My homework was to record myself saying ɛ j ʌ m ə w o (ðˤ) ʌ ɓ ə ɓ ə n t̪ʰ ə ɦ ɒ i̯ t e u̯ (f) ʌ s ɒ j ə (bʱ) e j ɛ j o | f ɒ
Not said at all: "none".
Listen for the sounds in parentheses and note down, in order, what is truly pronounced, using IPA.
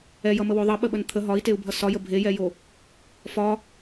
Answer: ðˤ, bʱ, bʱ

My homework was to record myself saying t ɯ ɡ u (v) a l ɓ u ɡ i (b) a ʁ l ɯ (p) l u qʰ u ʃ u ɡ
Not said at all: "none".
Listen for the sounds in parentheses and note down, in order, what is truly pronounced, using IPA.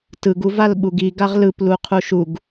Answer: v, ɡ, p

